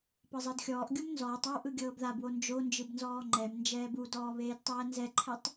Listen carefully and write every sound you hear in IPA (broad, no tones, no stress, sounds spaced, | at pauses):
p ɤ zˤ ɤ d xʲ ɔː ʔ ɡʲ u m n z ɔː tˤ a w ʔ ɯ ɡʲ ɤː b ð a b w o n d͡ʒ o n d͡ʒ ɯ b n z ɔː ŋ͡ǃ ɛ m n d͡ʒ ɛː b u d ɔː β eː d tˤ ɛː n z ɛ ǃʰ ɛ tˤ